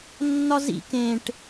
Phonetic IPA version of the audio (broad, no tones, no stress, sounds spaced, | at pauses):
nː ɒ z ḭ k ẽ ʈ